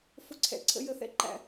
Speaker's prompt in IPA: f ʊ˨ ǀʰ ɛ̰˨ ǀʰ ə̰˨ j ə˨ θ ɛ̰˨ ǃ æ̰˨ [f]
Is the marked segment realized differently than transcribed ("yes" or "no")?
yes